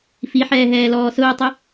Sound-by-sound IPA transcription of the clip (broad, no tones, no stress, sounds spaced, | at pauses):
f i ħ ɛː ɦ ɛː l ɔː s ʊː tˤ ʊ